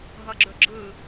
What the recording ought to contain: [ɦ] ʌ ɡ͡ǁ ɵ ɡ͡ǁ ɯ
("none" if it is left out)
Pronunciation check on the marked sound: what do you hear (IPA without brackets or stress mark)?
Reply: ɦ